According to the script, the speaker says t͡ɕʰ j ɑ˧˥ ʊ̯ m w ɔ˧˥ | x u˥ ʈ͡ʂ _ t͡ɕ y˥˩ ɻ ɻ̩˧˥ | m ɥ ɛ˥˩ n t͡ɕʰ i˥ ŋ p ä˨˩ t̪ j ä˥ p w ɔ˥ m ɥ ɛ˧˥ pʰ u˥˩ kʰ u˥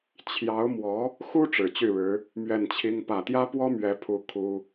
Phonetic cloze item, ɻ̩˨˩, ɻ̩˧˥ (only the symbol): ɻ̩˨˩